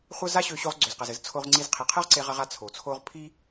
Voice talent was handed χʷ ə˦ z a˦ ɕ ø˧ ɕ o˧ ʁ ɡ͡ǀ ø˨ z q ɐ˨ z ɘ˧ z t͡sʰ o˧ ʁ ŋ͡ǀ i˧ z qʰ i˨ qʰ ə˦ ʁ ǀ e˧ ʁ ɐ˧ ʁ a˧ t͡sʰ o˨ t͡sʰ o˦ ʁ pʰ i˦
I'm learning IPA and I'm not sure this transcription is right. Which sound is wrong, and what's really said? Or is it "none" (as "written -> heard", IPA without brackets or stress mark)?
none